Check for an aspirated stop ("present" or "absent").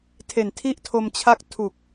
present